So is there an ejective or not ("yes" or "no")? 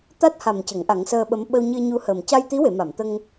no